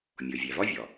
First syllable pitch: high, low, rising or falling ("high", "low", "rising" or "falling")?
low